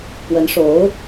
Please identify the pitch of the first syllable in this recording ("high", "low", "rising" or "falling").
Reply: rising